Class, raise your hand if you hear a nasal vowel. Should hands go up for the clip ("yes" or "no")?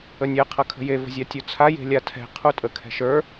no